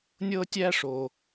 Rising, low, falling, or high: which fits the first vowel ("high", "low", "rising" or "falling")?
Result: high